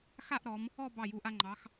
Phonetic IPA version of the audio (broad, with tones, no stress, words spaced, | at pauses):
xa˥˧ʔɾɔ˩˧m | ɔ˥˧ bɑ˧˩ju˩˧ʔa˧ ŋ͡ǃɑ˩˧x